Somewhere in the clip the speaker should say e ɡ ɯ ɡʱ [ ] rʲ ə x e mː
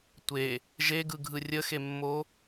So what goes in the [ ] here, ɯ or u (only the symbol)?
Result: ɯ